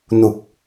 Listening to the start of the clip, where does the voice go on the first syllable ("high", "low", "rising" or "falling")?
low